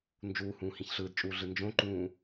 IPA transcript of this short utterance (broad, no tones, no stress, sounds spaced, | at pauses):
n d͡ʒ uː h ũː h ĩ ç ɬ ɯː d t͡ʃʼ uː ɮ ɯ n d͡ʒ õ ǃ ũː